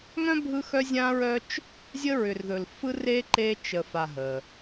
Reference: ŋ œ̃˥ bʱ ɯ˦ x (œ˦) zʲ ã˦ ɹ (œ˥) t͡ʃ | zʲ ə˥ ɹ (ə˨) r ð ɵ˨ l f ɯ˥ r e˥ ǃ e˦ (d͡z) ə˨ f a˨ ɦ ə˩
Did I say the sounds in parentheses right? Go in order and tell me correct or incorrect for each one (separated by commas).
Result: correct, correct, incorrect, incorrect